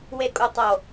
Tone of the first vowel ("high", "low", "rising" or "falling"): falling